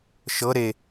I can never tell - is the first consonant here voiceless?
yes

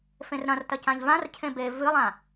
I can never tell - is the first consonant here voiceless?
yes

